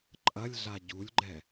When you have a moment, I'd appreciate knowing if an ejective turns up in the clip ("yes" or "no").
yes